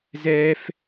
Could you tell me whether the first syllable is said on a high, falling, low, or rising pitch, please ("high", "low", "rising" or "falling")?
high